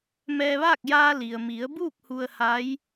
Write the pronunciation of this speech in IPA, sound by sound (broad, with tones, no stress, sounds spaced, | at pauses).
m ɛː˧ ʋ aː˥˨ k̚ j aː˧ l i˩ ə̯ m i˩˧ ə̯ b uː˥˨ k̚ h u˧ ə̯ h a˧˥ j